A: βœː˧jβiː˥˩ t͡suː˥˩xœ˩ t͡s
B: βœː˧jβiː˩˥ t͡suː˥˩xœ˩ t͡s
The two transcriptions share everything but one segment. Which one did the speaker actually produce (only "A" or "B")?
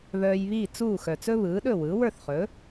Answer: A